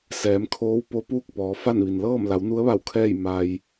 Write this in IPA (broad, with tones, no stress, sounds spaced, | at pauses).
s ɛː˩˧ m kʰ oː˧˥ w p o˧˥ p uː˥˨ k̚ p ɔː˩˧ f a˥˨ n ʋ i˩ n l ɤː˥˨ m l a˩˧ w n u˧˥ ə̯ ʋ a˧˩ w kʰ ɛː˥˨ j m a˩ j